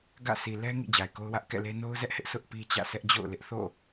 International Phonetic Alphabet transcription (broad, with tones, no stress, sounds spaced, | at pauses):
ɡ ä̰˦˨ s i˨ l ɛ˦ ŋ ḭ˦˨ d͡ʑ a˨ ɪ̯ k o˦ ʊ̯ w ä˦ ʔ k ɛ̰˦˨ l e˦ n o˦ ʊ̯ z ɛ˦ ʔ h ɪ˦ ʔ sʰ ʊ˦ ʔ p i˦ t͡ɕ ä̰˦˨ sʰ ɛ˦ ʔ d͡ʑ o̰˦˨ ʊ̯ l ɪ˦ ʔ θ o̰˦˨